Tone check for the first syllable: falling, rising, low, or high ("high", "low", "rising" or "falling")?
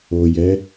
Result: low